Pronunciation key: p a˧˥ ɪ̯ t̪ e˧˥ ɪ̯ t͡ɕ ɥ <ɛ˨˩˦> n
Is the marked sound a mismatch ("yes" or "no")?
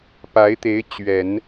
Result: no